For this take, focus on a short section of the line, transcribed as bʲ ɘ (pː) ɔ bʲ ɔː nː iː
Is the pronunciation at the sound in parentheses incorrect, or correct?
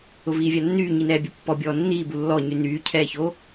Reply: correct